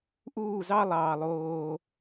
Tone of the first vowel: falling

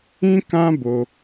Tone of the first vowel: high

